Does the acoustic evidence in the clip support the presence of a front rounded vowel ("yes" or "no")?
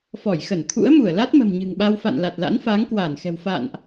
no